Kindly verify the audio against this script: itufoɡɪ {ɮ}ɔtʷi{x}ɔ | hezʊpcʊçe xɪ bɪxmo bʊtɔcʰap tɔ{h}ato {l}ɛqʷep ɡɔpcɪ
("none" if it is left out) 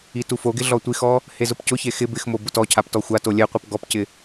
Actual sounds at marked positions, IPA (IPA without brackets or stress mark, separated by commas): ɮ, x, xʷ, lʲ